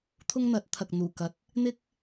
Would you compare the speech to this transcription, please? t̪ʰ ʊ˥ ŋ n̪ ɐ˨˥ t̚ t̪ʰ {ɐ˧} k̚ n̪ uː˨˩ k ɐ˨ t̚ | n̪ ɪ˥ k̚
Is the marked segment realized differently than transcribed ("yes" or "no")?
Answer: yes